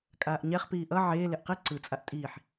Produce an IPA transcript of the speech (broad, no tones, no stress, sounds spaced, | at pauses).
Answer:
kʼ aː ʔ ɲ ɛ χ p iː ʔ ʌ ʕ eː l e ʔ q i ǀ ɯ t͡sʼ a ʔ tʼ iː ħ